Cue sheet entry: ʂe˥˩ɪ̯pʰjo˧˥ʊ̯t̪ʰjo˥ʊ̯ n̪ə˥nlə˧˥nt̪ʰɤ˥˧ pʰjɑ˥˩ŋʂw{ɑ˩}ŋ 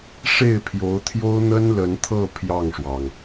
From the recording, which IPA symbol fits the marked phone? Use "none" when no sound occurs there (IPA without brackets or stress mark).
ɑ˩